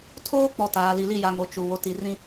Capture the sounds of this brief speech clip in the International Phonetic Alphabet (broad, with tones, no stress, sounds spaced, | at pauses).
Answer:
tʰ oː˦ k͡p ɔ˨ t aː˨ l i˨ l i˦˨ j a˨ ŋ o˨ t͡ʃ u˨ w o˨ t i˨ r ĩ˦